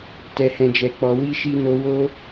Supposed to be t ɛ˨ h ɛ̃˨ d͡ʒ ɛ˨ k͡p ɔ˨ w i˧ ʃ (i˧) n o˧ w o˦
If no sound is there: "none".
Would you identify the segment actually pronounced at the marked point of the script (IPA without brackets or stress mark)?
i˧